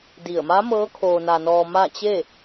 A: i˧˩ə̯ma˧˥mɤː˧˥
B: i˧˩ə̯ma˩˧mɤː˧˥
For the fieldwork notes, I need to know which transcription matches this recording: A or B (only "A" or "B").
A